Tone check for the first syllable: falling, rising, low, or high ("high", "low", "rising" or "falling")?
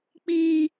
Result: high